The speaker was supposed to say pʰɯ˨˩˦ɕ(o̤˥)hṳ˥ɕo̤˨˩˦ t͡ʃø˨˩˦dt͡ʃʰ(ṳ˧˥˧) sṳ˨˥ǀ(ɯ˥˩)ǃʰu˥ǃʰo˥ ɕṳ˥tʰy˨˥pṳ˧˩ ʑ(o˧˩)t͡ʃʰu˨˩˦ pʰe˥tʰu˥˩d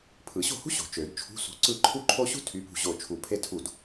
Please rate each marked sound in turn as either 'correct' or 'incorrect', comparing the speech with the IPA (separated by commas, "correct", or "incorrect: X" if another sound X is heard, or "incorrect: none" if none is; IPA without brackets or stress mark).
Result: incorrect: o̤˥˩, correct, correct, correct